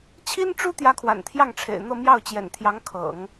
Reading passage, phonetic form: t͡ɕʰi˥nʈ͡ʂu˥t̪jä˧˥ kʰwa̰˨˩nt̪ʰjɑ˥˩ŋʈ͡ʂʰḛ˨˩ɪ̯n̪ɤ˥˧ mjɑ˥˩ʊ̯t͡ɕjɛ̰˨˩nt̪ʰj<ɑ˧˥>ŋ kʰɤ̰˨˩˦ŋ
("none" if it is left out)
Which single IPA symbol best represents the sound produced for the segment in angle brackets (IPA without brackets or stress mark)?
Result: ɑ˧˥